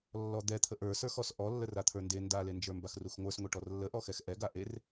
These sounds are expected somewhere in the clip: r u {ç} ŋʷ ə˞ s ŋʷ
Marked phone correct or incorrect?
incorrect